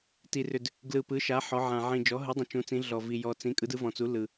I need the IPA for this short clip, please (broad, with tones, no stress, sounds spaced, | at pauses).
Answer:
t i˨˩ r ʏ˨˩ d | ɡ l ɯ˨˩ p ɯ˩˥ ʃ a˩˥ ħ ɔ˩˥ ʕ ã˨˩ ʕ ĩ˨˩ d͡ʒ ɔ˩˥ ɦ ɯ˩˥ dˤ ũ˨˩ t͡ʃ ũ˩˥ t͡s ĩ˩˥ ɮ ɔ˨˩ v i˨˩ j ɔ˨˩ t͡s ĩ˩˥ kʼ ɯ˩˥ d ɯ˩˥ v ɔ̃˨˩ t͡s u˩˥ l ɯ˨˩